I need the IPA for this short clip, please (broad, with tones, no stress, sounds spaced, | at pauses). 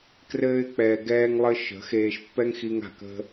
k r ɘː˧ ɪ̯ k͡p ɛː˨ ɡ ɛː˧ ŋ lˠ ɘ˧ ʃ ə̤˨˦ x eː˧ ʃ pː ɛ˦ ŋ x i˧ ŋ a̤˨ k ə̤˦